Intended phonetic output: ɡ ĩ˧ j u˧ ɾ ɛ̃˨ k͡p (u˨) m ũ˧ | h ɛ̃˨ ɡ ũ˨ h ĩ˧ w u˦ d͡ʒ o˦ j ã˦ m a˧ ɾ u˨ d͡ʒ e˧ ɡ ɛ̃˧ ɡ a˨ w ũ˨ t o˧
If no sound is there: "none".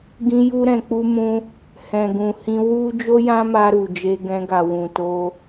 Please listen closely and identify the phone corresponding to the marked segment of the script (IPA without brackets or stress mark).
u˧